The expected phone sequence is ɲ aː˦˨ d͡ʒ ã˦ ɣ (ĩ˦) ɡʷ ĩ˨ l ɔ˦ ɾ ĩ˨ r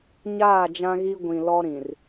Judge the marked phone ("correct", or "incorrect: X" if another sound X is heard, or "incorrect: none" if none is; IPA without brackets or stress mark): incorrect: i˦